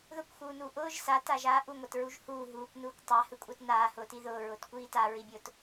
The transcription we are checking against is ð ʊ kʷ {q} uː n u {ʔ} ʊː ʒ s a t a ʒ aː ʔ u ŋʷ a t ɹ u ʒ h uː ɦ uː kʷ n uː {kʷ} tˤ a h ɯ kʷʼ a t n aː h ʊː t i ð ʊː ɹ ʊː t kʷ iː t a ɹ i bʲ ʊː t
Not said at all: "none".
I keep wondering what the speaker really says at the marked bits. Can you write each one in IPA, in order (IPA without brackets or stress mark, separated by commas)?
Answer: x, ʔ, kʷ